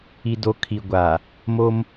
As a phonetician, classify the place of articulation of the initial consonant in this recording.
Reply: alveolar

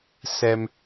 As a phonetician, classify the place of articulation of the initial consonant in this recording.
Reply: alveolar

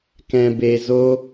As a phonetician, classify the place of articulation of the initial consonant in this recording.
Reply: velar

